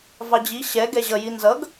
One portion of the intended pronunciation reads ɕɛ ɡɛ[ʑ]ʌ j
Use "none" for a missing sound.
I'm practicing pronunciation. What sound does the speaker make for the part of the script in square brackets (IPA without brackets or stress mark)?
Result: ʑ